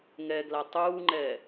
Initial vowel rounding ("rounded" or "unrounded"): unrounded